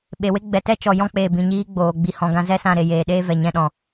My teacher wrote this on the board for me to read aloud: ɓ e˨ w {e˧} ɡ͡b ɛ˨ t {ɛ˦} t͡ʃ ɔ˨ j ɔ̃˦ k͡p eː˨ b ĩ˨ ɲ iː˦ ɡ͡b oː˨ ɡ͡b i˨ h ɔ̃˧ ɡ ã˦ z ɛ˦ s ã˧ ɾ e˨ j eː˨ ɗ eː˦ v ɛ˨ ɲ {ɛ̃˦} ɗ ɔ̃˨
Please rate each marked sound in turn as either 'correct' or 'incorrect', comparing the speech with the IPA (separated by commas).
incorrect, correct, correct